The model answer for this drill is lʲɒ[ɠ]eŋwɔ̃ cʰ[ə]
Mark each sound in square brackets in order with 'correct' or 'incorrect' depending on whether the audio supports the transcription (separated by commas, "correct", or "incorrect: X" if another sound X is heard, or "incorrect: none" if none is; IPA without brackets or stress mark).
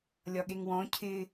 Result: correct, incorrect: ɪ